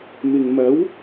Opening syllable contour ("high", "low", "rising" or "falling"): low